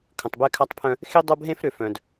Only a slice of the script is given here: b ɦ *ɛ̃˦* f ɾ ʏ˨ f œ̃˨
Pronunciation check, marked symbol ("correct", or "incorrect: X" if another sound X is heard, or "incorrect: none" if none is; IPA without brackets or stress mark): incorrect: ẽ˦